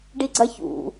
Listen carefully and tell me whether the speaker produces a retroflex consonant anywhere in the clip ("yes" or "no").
yes